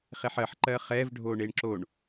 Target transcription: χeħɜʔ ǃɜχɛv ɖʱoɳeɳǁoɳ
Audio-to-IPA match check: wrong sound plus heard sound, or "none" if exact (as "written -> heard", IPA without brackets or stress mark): ʔ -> ħ